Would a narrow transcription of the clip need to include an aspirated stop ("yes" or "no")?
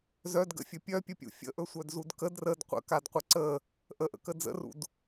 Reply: no